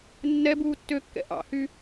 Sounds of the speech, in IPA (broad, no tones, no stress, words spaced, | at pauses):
nːɛbuː tːøkːɛ̰ ʔɑ̰hy